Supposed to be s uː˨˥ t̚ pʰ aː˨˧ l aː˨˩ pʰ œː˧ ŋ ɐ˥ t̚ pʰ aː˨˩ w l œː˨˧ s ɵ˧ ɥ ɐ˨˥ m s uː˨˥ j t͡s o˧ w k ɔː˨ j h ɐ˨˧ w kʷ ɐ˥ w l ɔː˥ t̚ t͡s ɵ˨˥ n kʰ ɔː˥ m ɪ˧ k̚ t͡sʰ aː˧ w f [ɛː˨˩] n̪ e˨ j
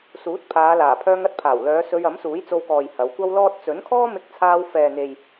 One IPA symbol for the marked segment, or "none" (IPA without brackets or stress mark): ɛː˨